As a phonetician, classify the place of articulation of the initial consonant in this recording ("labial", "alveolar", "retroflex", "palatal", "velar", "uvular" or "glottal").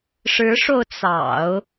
retroflex